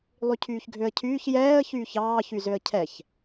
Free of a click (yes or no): yes